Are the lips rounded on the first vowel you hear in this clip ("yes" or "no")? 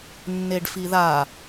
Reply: no